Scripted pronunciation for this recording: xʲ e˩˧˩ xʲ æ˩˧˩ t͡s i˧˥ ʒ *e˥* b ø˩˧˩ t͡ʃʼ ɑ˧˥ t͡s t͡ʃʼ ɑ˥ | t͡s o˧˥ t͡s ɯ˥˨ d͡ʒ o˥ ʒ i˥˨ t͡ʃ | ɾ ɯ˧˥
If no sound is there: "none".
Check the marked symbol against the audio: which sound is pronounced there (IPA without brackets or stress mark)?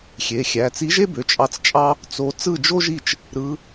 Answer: e˥